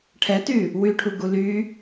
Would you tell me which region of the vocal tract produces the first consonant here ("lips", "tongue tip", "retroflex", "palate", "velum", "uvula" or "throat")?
retroflex